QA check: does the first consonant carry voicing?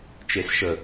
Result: no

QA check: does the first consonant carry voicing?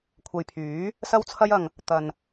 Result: no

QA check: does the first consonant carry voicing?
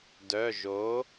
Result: yes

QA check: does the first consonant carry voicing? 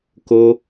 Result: no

